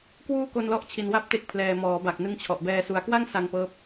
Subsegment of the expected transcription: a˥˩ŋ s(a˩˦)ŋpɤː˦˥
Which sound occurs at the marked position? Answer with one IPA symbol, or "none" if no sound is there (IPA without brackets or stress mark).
a˧